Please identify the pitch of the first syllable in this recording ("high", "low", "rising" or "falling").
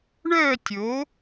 falling